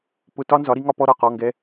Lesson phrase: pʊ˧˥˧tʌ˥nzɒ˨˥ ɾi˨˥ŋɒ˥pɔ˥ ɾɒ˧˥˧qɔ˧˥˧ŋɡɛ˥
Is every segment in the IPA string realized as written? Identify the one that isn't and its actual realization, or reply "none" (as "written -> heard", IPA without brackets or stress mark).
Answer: ʌ˥ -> ɒ˥